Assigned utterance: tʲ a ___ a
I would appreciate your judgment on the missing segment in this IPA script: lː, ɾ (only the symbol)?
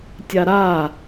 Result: ɾ